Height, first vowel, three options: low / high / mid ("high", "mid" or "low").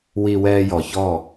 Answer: high